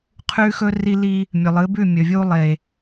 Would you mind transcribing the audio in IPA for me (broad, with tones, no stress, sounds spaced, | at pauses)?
qʰ ʉ˦ x ɵ˦ r i˦ l i˦ | mʲ ɵ˨ lˠ ɨ˨˦ b ʉ˦˨ mʲ ɵ˨ vʲ u˦ lˠ e˨